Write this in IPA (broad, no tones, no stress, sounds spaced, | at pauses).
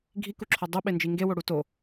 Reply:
ɡʱ i k u ǁʰ o dˤ u ɓ e n d͡ʒ i ŋ ɡ e w o ɽ u t o